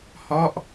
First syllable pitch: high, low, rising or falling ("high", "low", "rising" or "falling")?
falling